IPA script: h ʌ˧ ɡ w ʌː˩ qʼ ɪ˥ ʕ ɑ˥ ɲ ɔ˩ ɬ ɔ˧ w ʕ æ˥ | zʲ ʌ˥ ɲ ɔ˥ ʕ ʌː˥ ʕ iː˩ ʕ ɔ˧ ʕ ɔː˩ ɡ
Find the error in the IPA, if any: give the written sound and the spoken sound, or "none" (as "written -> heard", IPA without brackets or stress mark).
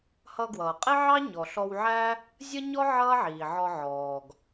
none